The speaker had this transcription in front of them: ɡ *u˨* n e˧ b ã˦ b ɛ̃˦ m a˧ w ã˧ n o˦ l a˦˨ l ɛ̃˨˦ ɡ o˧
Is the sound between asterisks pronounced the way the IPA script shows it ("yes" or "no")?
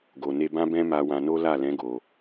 no